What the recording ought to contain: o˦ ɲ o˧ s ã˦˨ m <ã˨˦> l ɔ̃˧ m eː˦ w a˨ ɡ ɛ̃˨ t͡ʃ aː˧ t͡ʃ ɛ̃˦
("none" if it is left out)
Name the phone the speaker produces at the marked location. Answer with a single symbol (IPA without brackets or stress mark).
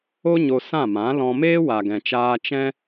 ã˨˦